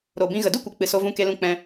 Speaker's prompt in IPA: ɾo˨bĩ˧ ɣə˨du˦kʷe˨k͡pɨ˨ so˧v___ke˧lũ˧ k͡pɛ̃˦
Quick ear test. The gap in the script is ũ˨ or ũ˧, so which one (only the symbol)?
ũ˧